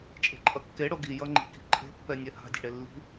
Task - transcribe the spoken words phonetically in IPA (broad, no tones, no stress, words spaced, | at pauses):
t͡ʃʼe̤ǃʼʌkːe ɽoɡi jʌŋ͡ǃi̤ ki̤ǃʼe̤pːɛnʲɛ ha̤dʲe̤ɽe lːi̤